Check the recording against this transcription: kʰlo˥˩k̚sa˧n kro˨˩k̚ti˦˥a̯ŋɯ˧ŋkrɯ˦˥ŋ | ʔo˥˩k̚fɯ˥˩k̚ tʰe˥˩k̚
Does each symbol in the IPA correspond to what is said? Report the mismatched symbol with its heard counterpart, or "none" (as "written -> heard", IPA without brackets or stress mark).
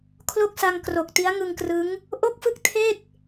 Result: n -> ŋ